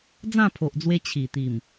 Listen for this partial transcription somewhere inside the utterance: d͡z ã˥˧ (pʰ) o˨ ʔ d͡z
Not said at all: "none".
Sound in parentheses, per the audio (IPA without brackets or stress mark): pʰ